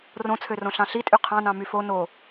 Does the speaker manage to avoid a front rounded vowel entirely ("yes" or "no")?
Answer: no